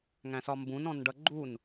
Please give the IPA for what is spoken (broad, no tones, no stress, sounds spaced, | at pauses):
ŋ æ̃ s ɒ m b ũ n ɔ̃ n ɖ ʌ ɡ͡ǃ u n